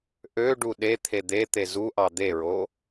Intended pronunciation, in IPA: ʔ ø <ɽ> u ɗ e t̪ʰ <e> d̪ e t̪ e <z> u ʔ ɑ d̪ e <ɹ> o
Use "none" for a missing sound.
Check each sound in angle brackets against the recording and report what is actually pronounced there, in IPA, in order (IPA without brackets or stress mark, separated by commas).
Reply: ɖ, e, z, ɹ